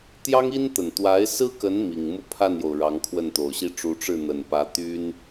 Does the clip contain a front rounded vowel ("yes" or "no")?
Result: yes